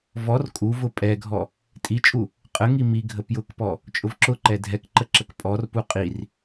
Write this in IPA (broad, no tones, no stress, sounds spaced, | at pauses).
v ɔ r kʼ u v ʊ pʼ ɛ ɡʱ ɔ | tʼ i t͡ʃʼ u | qʼ ə ŋ i m i ɡʱ ə p j ʊ k p ɔ | t͡ʃʼ ʊ v ǁ ʊ ǃ ɛ dʱ ɛ k ǃ ə ǁ ə k pʼ ɔ r p u qʼ i r